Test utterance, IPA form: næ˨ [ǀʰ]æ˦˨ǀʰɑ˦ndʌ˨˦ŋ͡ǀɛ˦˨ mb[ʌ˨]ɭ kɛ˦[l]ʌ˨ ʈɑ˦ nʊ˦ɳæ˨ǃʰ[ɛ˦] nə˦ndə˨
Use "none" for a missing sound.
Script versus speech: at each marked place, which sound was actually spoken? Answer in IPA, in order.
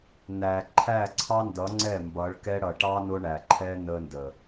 ǃʰ, ʌ˨˦, ɽ, ɛ˦

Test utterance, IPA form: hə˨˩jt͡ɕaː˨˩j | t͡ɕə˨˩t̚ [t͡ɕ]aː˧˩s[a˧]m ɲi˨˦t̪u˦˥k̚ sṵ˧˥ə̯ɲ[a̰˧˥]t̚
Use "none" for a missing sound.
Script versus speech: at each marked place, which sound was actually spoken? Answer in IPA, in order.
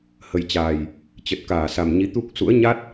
k, a˨˩, a˦˥

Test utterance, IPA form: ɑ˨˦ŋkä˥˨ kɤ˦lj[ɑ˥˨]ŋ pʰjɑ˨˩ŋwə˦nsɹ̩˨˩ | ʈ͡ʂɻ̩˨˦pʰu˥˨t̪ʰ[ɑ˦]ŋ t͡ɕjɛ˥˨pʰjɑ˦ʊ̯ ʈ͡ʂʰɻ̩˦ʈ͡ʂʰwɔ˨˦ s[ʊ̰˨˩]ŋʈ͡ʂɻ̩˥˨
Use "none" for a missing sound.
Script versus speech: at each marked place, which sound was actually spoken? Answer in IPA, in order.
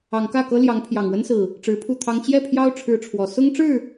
ɑ˨˦, ɑ˦, ʊ˦

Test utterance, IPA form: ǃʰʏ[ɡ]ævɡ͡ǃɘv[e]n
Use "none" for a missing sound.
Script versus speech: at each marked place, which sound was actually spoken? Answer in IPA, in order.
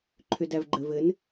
d, ɘ

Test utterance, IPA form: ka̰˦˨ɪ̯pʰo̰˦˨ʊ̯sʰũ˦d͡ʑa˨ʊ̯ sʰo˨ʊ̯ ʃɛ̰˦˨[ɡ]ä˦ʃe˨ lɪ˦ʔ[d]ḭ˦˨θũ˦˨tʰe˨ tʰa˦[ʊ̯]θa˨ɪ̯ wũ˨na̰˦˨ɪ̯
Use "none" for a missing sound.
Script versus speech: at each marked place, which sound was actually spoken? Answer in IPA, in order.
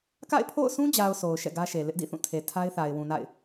ɡ, d, ɪ̯

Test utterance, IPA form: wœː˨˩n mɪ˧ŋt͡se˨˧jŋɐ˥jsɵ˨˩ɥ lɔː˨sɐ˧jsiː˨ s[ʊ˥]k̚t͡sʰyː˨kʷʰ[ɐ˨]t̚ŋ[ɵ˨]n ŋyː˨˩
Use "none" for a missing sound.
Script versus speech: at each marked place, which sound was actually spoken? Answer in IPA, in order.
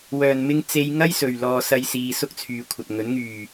ʊ˥, ɐ˨, ɵ˨˥

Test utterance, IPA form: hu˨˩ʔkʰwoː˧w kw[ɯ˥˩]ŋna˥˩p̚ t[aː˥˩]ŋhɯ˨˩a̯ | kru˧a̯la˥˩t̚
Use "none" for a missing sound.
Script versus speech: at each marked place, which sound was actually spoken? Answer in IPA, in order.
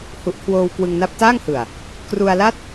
ɯ˧, aː˥˩

